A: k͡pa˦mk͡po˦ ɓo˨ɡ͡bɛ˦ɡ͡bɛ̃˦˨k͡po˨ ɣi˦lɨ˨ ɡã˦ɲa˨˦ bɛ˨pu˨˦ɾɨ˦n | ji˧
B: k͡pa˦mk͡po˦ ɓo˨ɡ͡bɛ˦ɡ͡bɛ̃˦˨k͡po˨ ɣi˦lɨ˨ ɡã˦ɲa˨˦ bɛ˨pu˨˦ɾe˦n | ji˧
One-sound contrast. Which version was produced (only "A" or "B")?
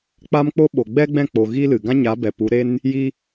B